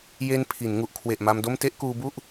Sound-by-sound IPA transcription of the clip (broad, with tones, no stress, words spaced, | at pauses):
je˧n pʰi˩˦n ŋu˨˩ʔkʰwe˨˩ʔ ma˧mdo˥˩m te˥˩ʔkuː˧bu˥˩ʔ